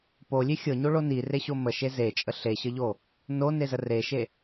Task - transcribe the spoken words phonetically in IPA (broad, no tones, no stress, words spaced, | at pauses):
polʲe xʲɤɲoɭo nireɕo məʃe zet͡ʃʼə ɬeɕəʎo | nonezə reʃe